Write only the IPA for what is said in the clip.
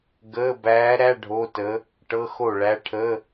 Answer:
ɡ əː˧˥˧ b æː˧˥ ɾ æ˧˥˧ ɖʱ o˧˥˧ t ə˧˥ | ʈ ɤ˧˥˧ x o˥˩ ɭ æ˧˥ ʈʰ ə˧˥˧

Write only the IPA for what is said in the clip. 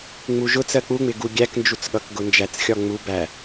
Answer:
ŋ͡m u ʒ ʊ t͡s ɜ k͡p u ŋ͡m ɪ ɡ u ɡʲ æ k n d͡ʒ u t͡s ɠ ʌ k ɡ ʊ n d͡ʒ æ t͡s xʲ ɒ ŋ͡m u b æ

